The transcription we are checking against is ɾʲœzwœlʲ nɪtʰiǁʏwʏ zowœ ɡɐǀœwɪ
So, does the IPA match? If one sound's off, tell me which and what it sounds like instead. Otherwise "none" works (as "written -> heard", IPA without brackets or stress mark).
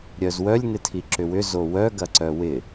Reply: none